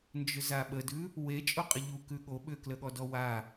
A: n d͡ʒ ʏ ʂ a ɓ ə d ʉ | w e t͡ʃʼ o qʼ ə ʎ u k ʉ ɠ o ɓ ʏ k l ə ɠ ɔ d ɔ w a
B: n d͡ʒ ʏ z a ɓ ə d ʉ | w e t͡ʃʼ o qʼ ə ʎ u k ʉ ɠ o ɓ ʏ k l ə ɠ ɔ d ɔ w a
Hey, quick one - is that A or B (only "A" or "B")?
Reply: B